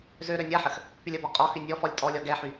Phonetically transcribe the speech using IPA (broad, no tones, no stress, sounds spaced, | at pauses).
z ø ɾ ø nʲ a ħ ə x | p y lʲ ə b ɔ qʼ ɔ x y nʲ ɔ f ɔ lʲ tʼ ɔ lʲ ɔ ɡ ɛ ħ y